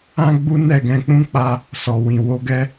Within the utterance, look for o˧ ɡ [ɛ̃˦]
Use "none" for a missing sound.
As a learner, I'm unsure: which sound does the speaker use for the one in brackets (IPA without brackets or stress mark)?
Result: ɛ˦